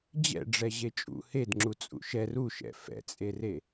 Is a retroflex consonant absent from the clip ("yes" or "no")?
no